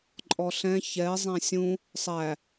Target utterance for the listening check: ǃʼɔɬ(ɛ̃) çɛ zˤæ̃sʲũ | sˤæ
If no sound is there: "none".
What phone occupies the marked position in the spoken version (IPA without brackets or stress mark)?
ɛ̃